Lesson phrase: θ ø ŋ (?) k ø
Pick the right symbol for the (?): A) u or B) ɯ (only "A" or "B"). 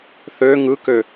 B